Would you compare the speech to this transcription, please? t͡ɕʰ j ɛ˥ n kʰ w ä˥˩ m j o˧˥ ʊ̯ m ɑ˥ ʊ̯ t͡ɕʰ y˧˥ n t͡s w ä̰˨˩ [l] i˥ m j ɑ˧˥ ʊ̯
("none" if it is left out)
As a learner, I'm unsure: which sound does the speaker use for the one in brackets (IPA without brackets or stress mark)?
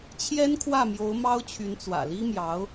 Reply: l